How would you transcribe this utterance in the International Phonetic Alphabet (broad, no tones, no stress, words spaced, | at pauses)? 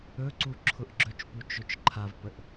ɵǀu ǁʰʊʔɡ͡ǁɵt͡ʃpu t͡ʃɵt͡ʃǃʰavpəʔ